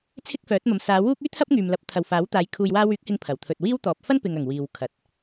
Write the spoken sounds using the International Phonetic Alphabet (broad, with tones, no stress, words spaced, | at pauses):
t͡sʰɪ˥k̚fœː˨˥t̚mɐ˨˧m saː˨˧ wuː˥k̚ yː˥ t̪ʰɐ˥p̚ŋyː˨mlɐ˨˥p̚ t̪ʰɐ˨wfaː˨˥wt̪aː˨˧j kʰuː˨jwaː˧wyː˨˥k̚hɪ˨˧ŋ pʰɐ˨˩wt̪ʰɵ˨t̚wiː˥wt̪ɔː˨˥p̚ fɐ˥npɪ˨ŋ ɐ˨˩ŋ wiː˨wkʰɐ˨t̚